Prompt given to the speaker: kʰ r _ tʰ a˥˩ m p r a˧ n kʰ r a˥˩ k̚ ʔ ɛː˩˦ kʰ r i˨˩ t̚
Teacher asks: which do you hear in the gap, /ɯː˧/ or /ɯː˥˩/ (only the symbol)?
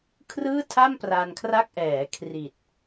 ɯː˥˩